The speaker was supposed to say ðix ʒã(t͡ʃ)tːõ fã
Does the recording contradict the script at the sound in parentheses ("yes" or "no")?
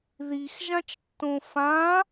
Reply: no